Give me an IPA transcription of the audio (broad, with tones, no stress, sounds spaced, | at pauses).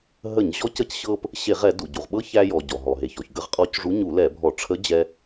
ɦ ə˧˩˧ ɲ ʑ ɔ˧˥ c ə˧˥ c ɕ ɤ˧ p | ɕ e˧˩˧ ʁ ɛ˧˩˧ d u˩ ɟ u˩ ʁ ɓ ɤ˧˥ ç æ˧ j ɔ˩ ɟ ɔ˩ ɦ ɔ˩ ɦ e˩ ç ɔ˩ ç ɡ ə˧˥ ʁ qʼ ɔ˧˥ c ʐ u˧˥ ɲ u˧˩˧ l ɛ˧˩˧ bʱ ɔ˧˩˧ ʈ͡ʂʰ ə˧˥ d͡ʑ ɛ˧